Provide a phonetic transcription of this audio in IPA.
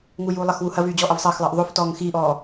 ŋuːjuːlˠɐxwu hɐvyː d͡ʑɔːʔɐvsˤɐːxlˠɐːʔ ðˤoftɔːŋ xiːʔɔː

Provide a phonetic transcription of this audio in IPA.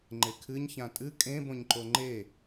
ŋ͡ǃekʰɨɲ çãtʼɨ kʼẽbõɲǃo ŋ͡ǃe

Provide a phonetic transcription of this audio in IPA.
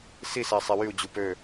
sisɛ sˤewyu̯d͡ʑu pø

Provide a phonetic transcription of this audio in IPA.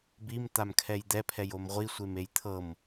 bim t̪amkʰɛjd̪ɛ pʰɛjomʁʷi sʷemejt̪ʰɤm

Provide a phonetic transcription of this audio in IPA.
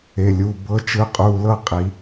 e˩˧˩lʲu˩˧˩ bɤ˧˥t͡ʃɯ˧˥qʼu˩˧˩lɤ˥˧ qʼi˨˩˦

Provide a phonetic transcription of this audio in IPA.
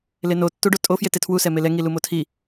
leno tːuɖotʼo fjetetʰwu sɛmelɛ ŋilumotʰi

